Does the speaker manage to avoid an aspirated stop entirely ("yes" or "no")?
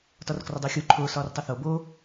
no